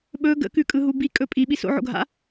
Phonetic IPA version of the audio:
ɓ ɵ ɡ ə̰ k ʉ kʼ ɯ ɦ u b i kʼ ɵ pʼ i ɓ i s o̰ ʕ o̰ ɡʱ a̰

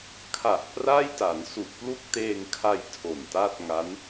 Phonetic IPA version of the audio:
kʰ a˨˩ ʔ p r a˥˩ j t a˩˦ n s u˨˩ ʔ p l u˥˩ k̚ t eː˧ ŋ kʰ a˧ j tʰ o˨˩ n t a˥˩ t̚ ŋ a˦˥ n

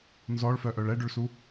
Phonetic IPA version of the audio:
n z ɔ ɭ f œ ʔ œ ɭ ɛ ɖ ʏ ɭ s u

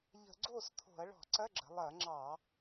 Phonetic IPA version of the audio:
ʎ ə̤˧˩˧ ɡ͡ǀ oː˥˩ s t̪ʰ o̤˧˩˧ ɐ̯ ɭ ɔ̤˧˩˧ ǀ ɐ˧˥˧ ɡ͡ǁ ə̤˩˧ lˠ ɐː˧˩˧ ŋ͡ǁ ɑ˧˩˧

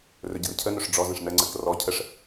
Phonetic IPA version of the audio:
r ɵ ɟ ə r cʰ ə n ɵ ʂ ɖ͡ʐ ɔ z ə̃ ʂ n ə ŋ͡ǀ ə k r ɔ cʰ ə ʂ

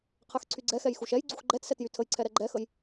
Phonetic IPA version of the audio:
qʰ ɛ x ǀʰ y ɡ͡ǀ ɛ x ɛ j x u ʃ ɛ j ɡ͡ǀ u x ɡ͡ǃ ɛ t s ɛ t j y tʰ ə j ǀʰ ɛ ɾ ɛ ɡ͡ǃ ɛ x ə j

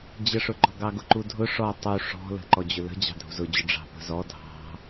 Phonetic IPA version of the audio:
d͡ʑ ə ʂ ʊ ɡ͡ǃ ɔ ɡ ɑ ɡ ʊ ǃ u dʱ ʊ ʂ ɔ tˤ u ʂ ɔ̤ l ə̤ ǃ ɔ d͡ʑ ʊ l ə̤ d͡ʑ ɑ̤ dʱ ṳ z ʊ d͡ʑ ʊ ɖ͡ʐ ɑ̤ p ə̤ z ɔ dʱ ɑ̤

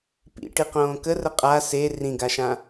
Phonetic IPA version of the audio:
p ḭ ʈ i q õː k ə r ə qʼ a s e r ĩ ɡ a ʃ ã

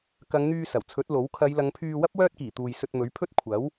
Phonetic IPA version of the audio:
k ɐ˨˧ ŋ n̪ yː˧ s ɐ˨˩ w t͡sʰ ɵ˨˥ t̚ l o˨˥ w kʰ ɐ˨˧ j l ɐ˨˧ ŋ pʰ yː˧ w ɐ˥ p̚ w œː˥ t̚ k iː˨˩ t̪ uː˨ j s ɵ˧ t̚ m ɵ˨˥ ɥ pʰ ɵ˥ t̚ kʷʰ ɐ˨˥ w

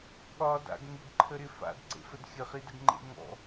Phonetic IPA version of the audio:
ɠ ɒ d a̰ ɡ ŋ ɪ ɡ ǃʰ ə ɾ ɪ f a̰ d ǀ ḛ f ə d xʲ ə χ i d ə ɡ ŋ͡ǃ ḛ ŋ ɔ̰

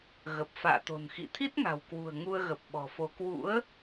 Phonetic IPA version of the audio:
ɣ ə˨˩ p̚ f a̰ː˧˨ t̪ o̤˨˩ n x ḭ˧˨ t̪ʰ i˦˥ t̚ ŋ a̤˨˩ w k w ṳ˨˩ ə̯ ŋ u˧ ə̯ ɣ ə˨˩ p̚ ɓ ɔ̤˨˩ f o˨˦ k w ṵ˧˥ ə̯

